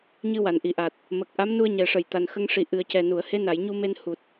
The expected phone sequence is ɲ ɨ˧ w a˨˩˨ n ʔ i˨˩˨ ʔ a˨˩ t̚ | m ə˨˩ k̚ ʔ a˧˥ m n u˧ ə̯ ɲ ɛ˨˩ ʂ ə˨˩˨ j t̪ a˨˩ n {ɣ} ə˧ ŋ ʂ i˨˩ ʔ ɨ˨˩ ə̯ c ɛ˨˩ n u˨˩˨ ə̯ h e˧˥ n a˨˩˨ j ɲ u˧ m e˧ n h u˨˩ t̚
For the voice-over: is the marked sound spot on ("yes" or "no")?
no